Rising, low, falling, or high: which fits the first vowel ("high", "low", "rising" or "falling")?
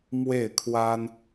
falling